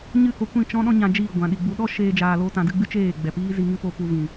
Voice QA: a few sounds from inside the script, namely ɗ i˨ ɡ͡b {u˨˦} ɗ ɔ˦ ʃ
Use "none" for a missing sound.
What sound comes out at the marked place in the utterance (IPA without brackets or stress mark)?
u˨˦